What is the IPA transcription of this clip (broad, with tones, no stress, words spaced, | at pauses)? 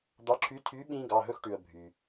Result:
d̪ɑ˨˥ǁʰy˨˥tʰy˨˥ ɓĩ˦ ɡɑ˩˧˩ɦɵ˦xʈʉ˩ə̯ bʱy˩